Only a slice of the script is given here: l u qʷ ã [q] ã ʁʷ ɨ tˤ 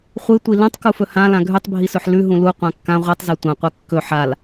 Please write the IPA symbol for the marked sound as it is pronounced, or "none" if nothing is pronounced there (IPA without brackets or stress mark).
kː